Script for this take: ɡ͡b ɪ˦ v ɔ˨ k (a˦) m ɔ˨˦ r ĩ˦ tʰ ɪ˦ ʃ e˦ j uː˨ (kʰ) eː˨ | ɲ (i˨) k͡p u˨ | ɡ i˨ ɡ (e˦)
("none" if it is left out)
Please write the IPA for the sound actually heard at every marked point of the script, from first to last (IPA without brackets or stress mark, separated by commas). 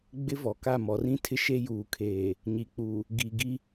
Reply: a˦˨, kʰ, i˨, i˦